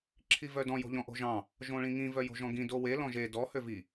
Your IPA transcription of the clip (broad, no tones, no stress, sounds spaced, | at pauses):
ǁʰ i v œ d ɔ̃ j o̤ ʎ ɔ̃ ʔ o̤ ʒ ɑ̃ | ʒ õ ɭ ĩ ŋ ĩ v œ j o̤ ʒ ɔ̃ ɡ ĩ d o w e l ɔ̃ ʒ e d ɔ h ø v i